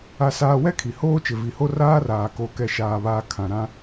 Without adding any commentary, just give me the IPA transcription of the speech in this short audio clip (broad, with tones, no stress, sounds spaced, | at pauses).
a˦ s aː˦ w ɛ˦ kʰ i˨ h oː˦ t͡ʃ ɪ˨ v i˨ h o˦ r aː˦ r aː˨ k o˦ k ɛ˨ ʃ aː˨ β aː˨ kʰ ã˨ ɾ ã˦